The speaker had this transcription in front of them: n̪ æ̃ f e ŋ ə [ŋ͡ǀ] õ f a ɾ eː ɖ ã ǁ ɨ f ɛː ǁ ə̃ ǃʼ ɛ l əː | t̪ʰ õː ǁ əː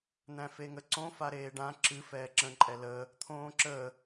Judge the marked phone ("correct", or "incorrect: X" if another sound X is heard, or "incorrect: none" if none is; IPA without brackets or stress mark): incorrect: ǀ